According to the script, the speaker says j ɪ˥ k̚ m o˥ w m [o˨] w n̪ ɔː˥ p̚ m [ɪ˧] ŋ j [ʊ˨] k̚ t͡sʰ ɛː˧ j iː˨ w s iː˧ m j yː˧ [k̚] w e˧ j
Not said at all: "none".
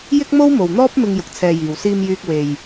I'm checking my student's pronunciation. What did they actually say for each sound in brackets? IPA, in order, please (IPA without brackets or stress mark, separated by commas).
o˨, ɪ˧, ʊ˨, k̚